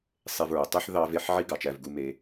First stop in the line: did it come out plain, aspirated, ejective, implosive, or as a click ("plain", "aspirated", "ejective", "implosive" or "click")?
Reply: plain